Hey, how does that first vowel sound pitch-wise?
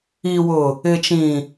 low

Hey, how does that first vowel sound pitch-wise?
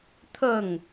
falling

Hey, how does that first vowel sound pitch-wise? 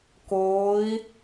rising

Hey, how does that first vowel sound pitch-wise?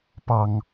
low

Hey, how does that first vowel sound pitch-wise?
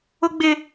high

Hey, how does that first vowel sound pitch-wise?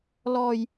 low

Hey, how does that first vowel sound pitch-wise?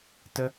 high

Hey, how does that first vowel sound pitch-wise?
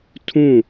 falling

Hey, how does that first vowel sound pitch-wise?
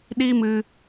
high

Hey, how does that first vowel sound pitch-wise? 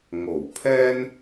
low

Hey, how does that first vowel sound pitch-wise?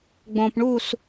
low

